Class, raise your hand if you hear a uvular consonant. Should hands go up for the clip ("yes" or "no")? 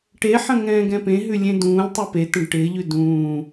no